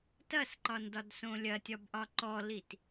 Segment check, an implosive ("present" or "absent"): absent